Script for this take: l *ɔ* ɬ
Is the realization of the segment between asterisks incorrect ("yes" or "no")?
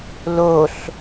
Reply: yes